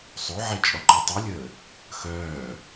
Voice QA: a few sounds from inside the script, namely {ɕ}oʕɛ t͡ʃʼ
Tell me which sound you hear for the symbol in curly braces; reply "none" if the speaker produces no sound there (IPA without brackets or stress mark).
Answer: sˤ